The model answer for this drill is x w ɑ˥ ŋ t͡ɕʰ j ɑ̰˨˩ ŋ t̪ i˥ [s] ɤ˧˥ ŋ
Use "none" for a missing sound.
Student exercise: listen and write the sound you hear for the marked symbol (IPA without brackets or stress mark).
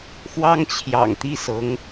s